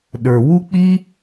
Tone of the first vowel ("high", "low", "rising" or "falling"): low